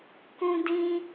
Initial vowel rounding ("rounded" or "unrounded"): rounded